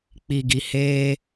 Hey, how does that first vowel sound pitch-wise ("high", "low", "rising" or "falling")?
low